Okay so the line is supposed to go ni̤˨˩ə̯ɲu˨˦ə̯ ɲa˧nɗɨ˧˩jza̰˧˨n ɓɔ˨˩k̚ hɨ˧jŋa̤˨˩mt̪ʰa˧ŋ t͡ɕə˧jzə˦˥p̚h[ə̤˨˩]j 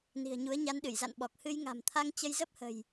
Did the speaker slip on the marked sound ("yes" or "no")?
no